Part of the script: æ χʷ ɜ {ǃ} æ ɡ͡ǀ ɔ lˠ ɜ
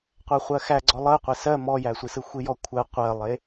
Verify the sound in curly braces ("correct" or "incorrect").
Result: incorrect